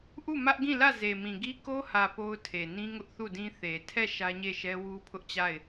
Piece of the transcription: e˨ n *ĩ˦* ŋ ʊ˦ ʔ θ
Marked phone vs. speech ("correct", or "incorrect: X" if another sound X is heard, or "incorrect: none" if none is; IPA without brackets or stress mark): correct